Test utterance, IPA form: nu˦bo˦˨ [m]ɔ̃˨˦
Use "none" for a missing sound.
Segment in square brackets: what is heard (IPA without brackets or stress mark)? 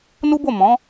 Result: m